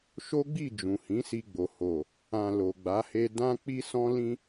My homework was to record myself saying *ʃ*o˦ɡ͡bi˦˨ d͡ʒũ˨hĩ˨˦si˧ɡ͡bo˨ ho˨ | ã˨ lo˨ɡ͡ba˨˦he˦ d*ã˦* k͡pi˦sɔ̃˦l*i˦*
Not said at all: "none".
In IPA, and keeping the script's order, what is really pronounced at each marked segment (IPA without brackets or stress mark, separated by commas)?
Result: ʃ, ã˦, ĩ˦